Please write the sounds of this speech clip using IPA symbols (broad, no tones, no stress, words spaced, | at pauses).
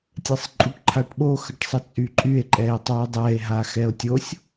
tʲɛsˤǃʼuʈǃʰaʈɓo xəʈsˤət͡sʼyǃʼye̯ ǃʼɛe̯tˤue̯dˤɛe̯ ɦaxɛo̯tʲosʲ